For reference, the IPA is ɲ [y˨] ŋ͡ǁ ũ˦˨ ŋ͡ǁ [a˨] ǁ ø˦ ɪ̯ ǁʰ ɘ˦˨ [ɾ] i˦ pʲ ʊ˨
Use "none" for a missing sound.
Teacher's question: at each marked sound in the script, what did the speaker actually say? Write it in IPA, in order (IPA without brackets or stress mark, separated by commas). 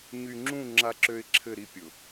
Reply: y˨, a˦, ɾ